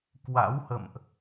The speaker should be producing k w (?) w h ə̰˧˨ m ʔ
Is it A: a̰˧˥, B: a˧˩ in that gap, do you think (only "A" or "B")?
A